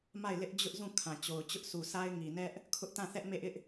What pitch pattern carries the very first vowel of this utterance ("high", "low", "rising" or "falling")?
falling